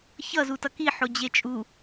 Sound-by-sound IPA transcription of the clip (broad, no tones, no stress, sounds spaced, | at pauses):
ç ʌ z u t ʌ k i ħ o d͡ʑ e t͡ʃʼ u